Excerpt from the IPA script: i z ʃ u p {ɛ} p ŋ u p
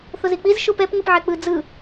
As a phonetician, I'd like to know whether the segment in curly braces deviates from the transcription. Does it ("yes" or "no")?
no